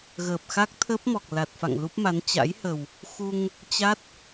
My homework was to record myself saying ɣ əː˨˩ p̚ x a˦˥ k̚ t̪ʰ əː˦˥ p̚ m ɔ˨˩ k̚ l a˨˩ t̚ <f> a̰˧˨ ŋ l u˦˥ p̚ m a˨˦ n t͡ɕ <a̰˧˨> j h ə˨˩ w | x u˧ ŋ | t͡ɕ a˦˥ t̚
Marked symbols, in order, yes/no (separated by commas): yes, no